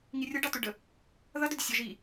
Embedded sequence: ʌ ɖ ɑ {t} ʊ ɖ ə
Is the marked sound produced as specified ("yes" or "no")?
yes